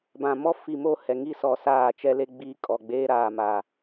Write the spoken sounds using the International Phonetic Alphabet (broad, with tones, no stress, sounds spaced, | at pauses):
b ã˨ m ɔ˦ f i˨ m o˦˨ h ɛ˨ ŋ i˦ s ɔ˨ s aː˦˨ t͡ʃ ɛ˦ l e˦ ɡ͡b iː˦ kʼ ɔ˨ ɡ͡b eː˦ ɾ aː˨ m a˨